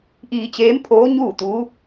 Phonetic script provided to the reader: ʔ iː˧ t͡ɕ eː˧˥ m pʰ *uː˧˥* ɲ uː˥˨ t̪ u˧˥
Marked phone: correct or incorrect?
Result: incorrect